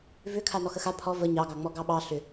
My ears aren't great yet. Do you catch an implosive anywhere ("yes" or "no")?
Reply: yes